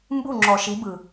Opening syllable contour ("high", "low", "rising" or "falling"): falling